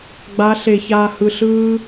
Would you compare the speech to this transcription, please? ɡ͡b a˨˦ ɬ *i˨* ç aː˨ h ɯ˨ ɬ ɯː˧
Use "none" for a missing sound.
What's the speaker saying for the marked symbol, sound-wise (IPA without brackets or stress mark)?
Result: e˨